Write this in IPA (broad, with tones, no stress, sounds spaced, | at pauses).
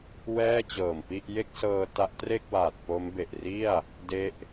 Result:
w ɛː˥˩ t͡ɕ ɤː˨˩ m p i˥˩ ʔ j e˥˩ k̚ s ɤː˧ t a˦˥ ʔ t r e˥˩ k̚ w aː˨˩ t̚ p o˦˥ m b e˨˩ ʔ r i˥˩ a̯ | d e˦˥ ʔ